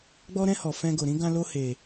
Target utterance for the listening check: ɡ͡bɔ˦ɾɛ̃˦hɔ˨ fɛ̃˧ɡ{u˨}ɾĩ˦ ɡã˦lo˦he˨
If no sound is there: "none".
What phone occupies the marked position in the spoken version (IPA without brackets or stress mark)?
o˨